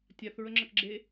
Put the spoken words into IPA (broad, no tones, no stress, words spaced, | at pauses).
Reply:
tʲaθɹəŋ͡ǁɐkɡ͡ǁe